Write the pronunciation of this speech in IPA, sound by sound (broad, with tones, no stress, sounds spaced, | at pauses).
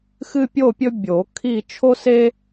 x ɨ˦ pʲ o˦˨ pʲ ɵ˦ bʲ o˨˩˦ kʰ i˦˨ t͡ʃʰ o˦ s e˦